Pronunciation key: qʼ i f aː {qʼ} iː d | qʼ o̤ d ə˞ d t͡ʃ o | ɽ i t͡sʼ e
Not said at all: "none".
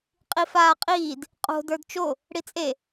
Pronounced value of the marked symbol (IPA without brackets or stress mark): qʼ